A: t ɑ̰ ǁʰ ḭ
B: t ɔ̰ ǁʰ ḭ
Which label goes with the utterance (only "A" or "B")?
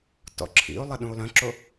B